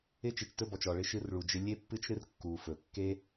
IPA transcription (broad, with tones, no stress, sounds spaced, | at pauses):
ɪ˦ t͡ʃ e˨ t͡ʃ t ɵ˦ b ɔ˩ t͡ʃ ɔ˩ ɭ ɪ˦ ʃ ɨ˦ r ɭ u˨ d͡ʒ ɪ˥ lʲ e˥ pː ɨ˥ t͡ʃ ɾ ɨ˥ r kː u˨ f ɵ˩ kː e˥